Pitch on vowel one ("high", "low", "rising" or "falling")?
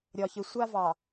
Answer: low